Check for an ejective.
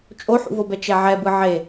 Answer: present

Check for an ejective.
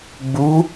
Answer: absent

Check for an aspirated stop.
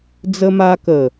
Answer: absent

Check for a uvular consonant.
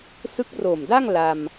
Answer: absent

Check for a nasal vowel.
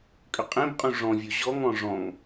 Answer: present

